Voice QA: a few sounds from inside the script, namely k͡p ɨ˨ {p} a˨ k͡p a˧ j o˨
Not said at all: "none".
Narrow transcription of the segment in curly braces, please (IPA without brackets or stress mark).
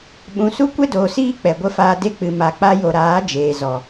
m